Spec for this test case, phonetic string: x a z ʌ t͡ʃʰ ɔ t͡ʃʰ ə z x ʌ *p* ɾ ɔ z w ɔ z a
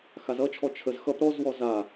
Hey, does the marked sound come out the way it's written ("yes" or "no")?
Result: yes